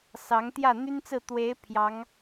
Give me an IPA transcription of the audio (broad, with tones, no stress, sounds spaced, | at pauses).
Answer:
s ɑ˧˥ ŋ t̪ j ä˥˩ n̪ y˥ n t͡s ɹ̩˥˩ t̪ w e˧˥ ɪ̯ pʰ j ɑ˧˥ ŋ